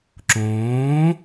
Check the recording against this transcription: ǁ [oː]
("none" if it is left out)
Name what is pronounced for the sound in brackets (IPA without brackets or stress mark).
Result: õː